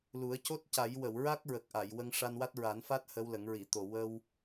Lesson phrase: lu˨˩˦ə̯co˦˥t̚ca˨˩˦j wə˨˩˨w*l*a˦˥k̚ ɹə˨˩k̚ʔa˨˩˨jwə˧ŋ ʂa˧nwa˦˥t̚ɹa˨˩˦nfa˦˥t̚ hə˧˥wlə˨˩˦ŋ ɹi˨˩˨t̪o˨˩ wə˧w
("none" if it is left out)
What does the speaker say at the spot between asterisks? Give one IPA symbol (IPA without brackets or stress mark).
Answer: ɹ